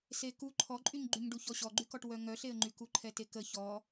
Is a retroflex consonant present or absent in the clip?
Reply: present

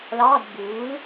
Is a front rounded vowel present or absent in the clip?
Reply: absent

